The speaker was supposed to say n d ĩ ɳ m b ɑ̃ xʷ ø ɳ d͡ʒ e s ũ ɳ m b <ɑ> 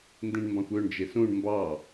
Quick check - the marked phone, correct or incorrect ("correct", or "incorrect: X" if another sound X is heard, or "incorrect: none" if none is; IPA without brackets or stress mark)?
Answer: correct